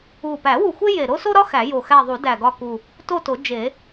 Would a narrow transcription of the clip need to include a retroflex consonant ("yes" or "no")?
no